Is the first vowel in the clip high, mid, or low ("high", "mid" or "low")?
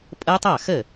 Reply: mid